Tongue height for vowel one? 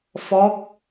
mid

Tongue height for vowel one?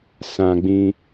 low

